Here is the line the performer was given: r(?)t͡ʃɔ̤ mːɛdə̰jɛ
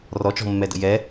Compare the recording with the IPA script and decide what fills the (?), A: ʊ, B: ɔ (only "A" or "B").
B